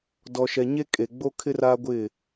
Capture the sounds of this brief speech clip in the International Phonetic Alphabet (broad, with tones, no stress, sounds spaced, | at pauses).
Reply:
d ɔ˨ ʃ ɛ˨ ɲ e˦ kʼ e˨ ɡ͡b o˦ kʰ ɪ˦ r a˦ ɡʷ ɪ˦˨